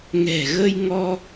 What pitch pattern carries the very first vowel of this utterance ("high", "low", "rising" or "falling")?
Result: low